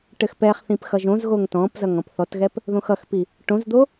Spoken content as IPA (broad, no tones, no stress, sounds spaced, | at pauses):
ʈ ɘ x p ɛ χ θ ĩ p x ʌ ʒ õ z ɣ o ŋ t ɔ̃ p z ʌ ŋ ɔ̃ p θ ɔ t ɣ ɛ p | ð õ x ʌ x p i | ʈ õ z d̪ o